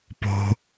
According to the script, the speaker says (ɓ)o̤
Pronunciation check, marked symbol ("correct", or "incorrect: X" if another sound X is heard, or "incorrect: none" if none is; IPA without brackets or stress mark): incorrect: p